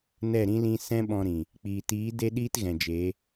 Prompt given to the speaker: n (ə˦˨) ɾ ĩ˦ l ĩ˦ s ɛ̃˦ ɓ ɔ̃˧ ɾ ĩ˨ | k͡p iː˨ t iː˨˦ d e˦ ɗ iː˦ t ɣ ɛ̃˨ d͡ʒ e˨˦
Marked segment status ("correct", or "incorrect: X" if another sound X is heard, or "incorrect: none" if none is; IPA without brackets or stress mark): incorrect: ɛ˦˨